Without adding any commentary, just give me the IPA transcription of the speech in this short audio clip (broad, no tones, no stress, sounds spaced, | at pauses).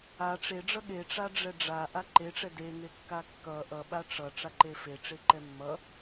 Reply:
a ʈ͡ʂ e ɖ͡ʐ ʌ ɠ e ʈ͡ʂ a ɖ͡ʐ ɛ ɖ͡ʐ a ʔ a ǃ e ʈ͡ʂ ɛ d e ŋ e kː a kː ʌ ʔ ʌ ɓ a ʈ͡ʂ ʌ ʈ͡ʂ a ǃ e f e ʈ͡ʂ e ǃ ɛ mː ʌ